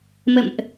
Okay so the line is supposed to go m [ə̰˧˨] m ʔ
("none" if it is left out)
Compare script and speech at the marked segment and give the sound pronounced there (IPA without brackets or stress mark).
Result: ə̰˧˨